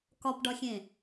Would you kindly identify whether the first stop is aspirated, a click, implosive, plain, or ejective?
plain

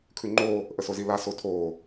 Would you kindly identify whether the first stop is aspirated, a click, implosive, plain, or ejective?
aspirated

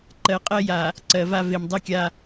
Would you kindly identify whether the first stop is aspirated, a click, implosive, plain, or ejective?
click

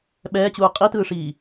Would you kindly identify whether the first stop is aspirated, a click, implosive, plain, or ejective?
implosive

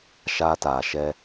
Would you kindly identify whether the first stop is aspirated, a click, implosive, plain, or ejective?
plain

